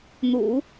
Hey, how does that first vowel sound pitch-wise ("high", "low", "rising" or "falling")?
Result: low